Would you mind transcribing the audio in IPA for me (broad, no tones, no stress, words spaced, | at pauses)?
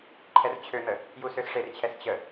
ǃʰɛrt͡ɕʰøn̪ə | jusøsʂert͡ɕʰɛs t͡ɕə